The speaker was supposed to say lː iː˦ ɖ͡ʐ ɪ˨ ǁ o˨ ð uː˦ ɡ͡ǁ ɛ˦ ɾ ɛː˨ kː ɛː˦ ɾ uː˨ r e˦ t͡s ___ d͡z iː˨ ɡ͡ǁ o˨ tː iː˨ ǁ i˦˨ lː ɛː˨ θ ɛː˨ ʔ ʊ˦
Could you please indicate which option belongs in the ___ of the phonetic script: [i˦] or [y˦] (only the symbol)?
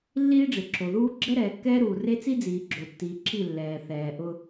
i˦